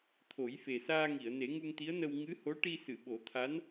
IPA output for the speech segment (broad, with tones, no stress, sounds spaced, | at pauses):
t̪ʰ o˨˩˦ j f e˨˩ s aː˧ ŋ i˨˩˨ ə̯ n e˨˩˦ ŋ u˧ ŋ t̪ i˧˥ ə̯ n ə˧ w ŋ ɨ˧˥ h o˧˥ ʈ i˧ s ɨ˨˩˨ ɓ o˨˩˦ t̪ʰ a˧˥ n